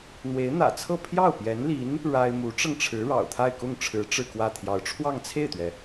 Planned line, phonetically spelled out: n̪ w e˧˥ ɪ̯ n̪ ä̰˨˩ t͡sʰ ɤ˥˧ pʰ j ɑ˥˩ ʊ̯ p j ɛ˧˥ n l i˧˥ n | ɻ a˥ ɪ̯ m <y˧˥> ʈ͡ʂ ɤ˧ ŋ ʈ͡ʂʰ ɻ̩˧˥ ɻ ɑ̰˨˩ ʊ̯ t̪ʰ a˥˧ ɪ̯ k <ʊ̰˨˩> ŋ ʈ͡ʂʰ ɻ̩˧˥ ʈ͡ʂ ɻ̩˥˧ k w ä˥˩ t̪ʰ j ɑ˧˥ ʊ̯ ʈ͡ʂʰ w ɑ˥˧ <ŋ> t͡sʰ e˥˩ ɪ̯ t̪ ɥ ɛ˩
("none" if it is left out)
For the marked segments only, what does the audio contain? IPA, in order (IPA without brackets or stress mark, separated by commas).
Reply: u˧˥, ʊ˥˩, ŋ